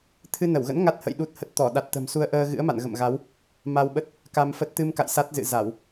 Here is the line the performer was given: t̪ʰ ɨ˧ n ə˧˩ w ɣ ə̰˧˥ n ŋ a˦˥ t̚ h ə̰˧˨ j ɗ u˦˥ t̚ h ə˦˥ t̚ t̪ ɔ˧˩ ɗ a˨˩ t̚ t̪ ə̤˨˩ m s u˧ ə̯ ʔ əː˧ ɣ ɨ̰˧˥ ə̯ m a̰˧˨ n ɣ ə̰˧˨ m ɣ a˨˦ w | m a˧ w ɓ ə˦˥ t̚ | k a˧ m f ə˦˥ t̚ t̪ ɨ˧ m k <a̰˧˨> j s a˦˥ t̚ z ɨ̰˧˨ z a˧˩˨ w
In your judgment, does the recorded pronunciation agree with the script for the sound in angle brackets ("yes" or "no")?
yes